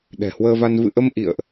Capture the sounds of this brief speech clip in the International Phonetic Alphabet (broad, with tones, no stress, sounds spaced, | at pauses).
ɗ ɛ̤˨˩ h w əː˧ v a˧ n v ɨ̰˧˨ ʔ ə˧ m ʔ ḭ˧˨ ə̯ ʔ